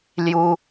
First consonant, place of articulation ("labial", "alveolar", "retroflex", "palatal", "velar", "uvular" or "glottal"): alveolar